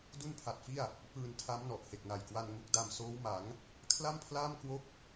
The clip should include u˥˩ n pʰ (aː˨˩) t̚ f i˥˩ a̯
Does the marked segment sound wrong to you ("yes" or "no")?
yes